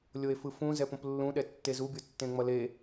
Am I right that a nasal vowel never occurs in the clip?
no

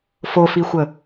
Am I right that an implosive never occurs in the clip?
yes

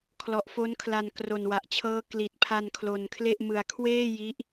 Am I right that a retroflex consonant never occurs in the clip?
yes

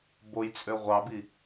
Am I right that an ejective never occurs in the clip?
no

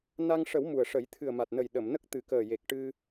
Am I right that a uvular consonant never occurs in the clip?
yes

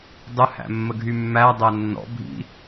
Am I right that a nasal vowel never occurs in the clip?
yes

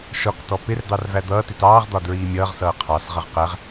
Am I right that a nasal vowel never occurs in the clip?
yes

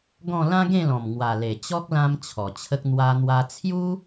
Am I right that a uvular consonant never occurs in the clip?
yes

